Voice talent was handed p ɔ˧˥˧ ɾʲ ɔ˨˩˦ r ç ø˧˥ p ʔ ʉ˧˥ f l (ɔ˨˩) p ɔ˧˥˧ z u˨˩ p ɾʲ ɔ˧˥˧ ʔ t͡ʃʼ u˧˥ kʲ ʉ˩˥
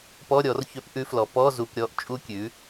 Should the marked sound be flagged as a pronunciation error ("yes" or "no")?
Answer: no